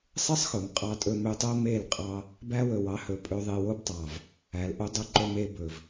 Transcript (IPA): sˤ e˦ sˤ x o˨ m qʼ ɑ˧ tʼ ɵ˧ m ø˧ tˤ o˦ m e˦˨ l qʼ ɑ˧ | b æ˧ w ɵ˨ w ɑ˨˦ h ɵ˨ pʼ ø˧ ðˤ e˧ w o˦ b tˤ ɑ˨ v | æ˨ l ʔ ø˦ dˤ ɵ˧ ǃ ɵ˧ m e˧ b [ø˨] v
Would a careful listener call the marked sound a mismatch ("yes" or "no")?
yes